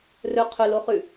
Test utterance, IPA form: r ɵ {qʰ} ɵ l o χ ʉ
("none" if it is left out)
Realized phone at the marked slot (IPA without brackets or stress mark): qʰ